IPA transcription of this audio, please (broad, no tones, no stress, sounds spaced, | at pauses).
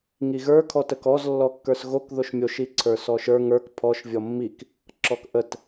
ŋ i ɣ ə˞ kʰ ɔ t ə k ɔ z lː ɔ kː ə˞ s ɣ o k ð o ʃ mʲ o ʃ i ǀʰ ə˞ s ɔ ʃ ə˞ ŋ ə˞ k pʰ ɔ ʃ vʲ ɔ mː i k | ǁ ɔ k ʔ ə t